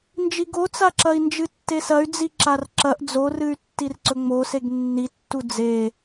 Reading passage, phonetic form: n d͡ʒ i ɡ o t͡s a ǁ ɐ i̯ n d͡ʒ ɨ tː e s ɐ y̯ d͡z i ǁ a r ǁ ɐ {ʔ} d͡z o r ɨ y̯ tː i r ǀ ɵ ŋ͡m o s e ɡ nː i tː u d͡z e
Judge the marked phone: correct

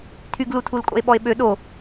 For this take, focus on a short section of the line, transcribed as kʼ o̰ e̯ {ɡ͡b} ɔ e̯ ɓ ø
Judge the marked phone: incorrect: ɓ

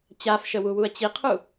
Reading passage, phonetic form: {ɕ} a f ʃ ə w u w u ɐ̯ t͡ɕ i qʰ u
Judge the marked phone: incorrect: t͡ɕ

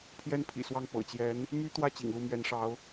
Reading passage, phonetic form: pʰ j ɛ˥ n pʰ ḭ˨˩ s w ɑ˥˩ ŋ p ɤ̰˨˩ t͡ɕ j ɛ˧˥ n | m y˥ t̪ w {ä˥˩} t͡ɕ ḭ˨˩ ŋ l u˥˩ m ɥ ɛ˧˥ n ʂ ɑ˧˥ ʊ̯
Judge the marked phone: correct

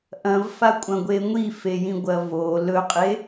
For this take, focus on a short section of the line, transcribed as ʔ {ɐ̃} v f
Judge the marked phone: correct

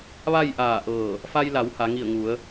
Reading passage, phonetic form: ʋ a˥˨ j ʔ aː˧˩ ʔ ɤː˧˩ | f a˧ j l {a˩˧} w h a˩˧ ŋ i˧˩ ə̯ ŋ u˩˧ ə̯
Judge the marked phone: correct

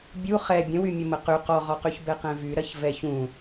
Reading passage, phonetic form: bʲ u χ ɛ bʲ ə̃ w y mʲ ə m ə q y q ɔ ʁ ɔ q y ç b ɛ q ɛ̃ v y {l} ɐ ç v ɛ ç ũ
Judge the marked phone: incorrect: ɾ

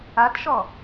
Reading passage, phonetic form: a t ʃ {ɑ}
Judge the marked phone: incorrect: ɔ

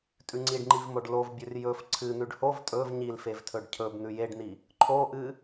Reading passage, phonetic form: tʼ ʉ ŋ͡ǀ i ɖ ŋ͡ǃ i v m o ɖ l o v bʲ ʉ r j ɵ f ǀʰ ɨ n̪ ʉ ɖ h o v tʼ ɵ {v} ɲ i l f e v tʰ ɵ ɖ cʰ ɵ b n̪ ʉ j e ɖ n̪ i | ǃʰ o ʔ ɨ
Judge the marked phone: correct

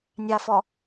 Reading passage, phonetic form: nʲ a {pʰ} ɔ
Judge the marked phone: incorrect: f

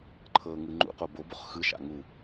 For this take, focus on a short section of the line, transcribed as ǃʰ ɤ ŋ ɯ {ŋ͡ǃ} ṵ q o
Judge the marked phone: correct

